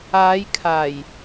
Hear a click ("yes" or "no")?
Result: no